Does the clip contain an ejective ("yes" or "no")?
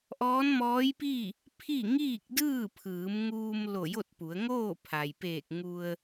no